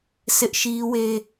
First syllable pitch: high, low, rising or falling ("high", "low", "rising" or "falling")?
high